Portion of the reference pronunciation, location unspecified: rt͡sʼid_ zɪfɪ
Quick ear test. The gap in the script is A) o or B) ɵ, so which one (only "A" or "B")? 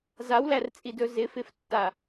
B